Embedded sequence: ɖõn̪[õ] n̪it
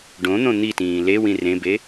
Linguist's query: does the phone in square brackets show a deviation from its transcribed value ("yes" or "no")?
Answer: no